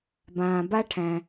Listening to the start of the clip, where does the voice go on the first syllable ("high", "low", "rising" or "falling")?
low